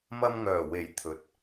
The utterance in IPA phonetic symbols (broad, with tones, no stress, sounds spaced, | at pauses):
m ɐ˧ m ŋ œː˨˩ w e˨˩ j t̪ʰ ɵ˨ t̚